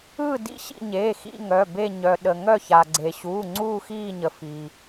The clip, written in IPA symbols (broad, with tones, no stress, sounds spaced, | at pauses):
ɯ˦˨ d ḭ˦˨ ɕ ḭ˦˨ ɲ eː˩˧˩ x ḭ˦˨ ŋ œ˩˧˩ b e˦˨ ɲ œ˩ ɗ ə˩ ŋ œ˦˨ ç a˩ ɡ͡ǀ e˩ ɕ uː˩˧˩ ŋ͡ǀ uː˦˨ x iː˦˨ ɲ ə˩ f i˩